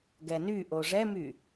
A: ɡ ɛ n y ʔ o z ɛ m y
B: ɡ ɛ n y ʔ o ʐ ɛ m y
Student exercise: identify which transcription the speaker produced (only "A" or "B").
B